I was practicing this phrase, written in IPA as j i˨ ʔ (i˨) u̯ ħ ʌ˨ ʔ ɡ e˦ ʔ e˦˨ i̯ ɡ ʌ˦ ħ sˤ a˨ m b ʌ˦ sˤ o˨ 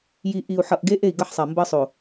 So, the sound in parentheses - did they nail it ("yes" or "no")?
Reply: yes